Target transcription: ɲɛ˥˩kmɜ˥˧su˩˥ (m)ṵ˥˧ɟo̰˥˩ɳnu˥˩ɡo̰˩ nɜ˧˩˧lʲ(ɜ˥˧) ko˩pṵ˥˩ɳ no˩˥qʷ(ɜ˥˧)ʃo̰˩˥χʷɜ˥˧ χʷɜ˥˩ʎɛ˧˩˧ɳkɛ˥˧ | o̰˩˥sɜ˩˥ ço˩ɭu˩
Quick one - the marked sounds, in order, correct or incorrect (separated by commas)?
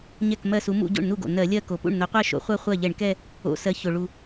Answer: correct, correct, correct